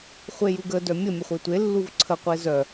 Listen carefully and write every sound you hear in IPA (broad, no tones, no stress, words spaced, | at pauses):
χʷejuɡə dœmʲə mʲəχʷetʷe lːuvǀʰə qʷezœ